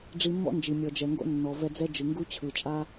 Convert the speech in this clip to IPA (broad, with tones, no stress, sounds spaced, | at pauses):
ɖ͡ʐ i˧ mː ɔ̰˦ n d͡ʒ i˨ mʲ ɔ˨ d͡ʒ ɛ˨ ŋ ɡ o̰˦ nː ɔ˨ v ɛ˧ d͡z ɛ˦ d͡ʒ ɯ˨ ŋ ɡ u˦ t͡ɕʰ ɯ˨ t͡ʃʼ a˦